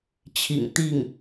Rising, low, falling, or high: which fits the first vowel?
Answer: low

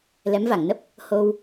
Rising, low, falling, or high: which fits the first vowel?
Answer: rising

